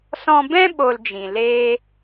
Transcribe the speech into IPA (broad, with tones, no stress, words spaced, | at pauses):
sɔ̃˧bɛ̃˦ ɓo˧ld͡ʒĩ˨leː˦